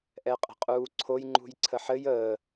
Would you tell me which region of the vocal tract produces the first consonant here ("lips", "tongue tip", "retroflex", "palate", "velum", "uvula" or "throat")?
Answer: throat